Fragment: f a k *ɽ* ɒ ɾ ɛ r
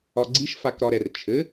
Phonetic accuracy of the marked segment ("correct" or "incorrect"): incorrect